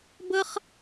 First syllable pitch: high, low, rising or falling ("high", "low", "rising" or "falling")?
high